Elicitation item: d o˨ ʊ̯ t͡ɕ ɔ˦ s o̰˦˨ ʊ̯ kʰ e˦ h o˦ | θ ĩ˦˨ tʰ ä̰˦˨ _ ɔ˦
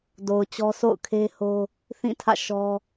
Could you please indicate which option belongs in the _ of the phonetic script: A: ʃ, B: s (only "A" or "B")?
A